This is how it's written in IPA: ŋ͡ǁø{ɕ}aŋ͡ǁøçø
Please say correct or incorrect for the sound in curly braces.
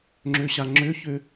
correct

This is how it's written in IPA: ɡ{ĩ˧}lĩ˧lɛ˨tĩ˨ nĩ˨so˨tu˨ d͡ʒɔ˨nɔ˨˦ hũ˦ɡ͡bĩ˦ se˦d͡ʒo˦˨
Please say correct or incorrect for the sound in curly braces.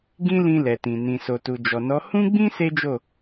incorrect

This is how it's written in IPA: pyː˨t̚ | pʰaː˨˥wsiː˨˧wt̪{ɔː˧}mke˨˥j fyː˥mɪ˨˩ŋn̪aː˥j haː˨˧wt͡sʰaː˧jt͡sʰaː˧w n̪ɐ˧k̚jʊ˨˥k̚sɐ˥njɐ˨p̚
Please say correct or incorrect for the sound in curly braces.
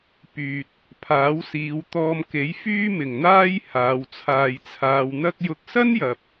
correct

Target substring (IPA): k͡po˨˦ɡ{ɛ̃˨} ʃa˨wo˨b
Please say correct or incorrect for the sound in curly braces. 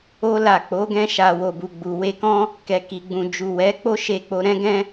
incorrect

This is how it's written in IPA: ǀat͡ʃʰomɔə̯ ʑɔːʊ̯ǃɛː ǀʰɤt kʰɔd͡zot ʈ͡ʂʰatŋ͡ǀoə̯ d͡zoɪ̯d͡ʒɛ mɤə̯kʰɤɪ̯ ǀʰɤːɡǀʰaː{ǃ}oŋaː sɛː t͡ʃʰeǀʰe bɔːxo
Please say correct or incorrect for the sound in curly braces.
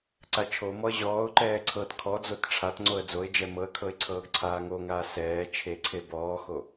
incorrect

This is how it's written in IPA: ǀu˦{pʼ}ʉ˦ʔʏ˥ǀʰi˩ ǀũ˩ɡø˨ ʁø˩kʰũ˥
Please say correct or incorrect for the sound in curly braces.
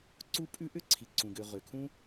correct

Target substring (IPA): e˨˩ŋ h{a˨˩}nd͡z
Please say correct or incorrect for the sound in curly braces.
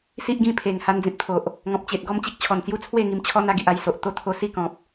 incorrect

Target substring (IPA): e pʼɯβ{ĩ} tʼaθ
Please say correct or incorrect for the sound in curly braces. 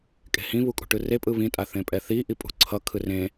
correct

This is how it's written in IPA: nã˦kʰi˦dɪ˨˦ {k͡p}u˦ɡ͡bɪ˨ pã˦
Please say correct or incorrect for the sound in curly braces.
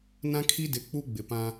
correct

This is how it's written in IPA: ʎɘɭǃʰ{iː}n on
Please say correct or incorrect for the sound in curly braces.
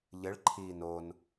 correct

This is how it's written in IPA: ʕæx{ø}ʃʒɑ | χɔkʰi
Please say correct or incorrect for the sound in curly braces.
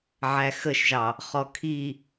incorrect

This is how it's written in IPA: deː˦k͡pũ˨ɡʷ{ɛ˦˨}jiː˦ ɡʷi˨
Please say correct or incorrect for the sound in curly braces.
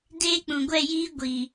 correct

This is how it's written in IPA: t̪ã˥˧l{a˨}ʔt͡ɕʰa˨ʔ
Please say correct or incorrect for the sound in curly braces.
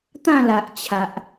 correct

